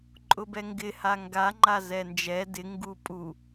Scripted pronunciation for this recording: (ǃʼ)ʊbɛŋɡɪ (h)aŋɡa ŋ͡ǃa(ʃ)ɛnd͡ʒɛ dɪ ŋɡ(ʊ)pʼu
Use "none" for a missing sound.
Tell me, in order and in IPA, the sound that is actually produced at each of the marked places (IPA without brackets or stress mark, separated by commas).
ǃʼ, h, z, u